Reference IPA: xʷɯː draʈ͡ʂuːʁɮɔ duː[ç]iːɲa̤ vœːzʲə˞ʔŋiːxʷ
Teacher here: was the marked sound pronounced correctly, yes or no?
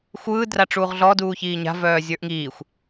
yes